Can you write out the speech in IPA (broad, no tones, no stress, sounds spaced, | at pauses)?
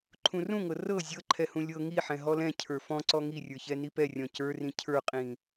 ǃʰ ũ r ũ ŋ ɤ r ɤ zʲ ɤ ǃʰ ɛ h ũ lʲ ɤ ŋ i ħ ɛ̃ ɦ ɔ l ɛ̃ cʰ ə˞ f ɔ̃ ǀ ɔ ŋ i rʲ ə˞ ç ɛ n i p ɛ rʲ ɔ̃ c ə˞ r ĩ cʰ ə˞ qʼ ĩ